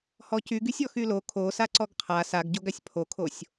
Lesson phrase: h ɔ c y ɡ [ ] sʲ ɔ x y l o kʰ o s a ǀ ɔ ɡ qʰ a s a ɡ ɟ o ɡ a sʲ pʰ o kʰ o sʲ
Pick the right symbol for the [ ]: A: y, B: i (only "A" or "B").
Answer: A